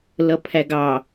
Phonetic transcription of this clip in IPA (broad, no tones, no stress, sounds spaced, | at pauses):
l ʌ pʰ æ ɡ ɑ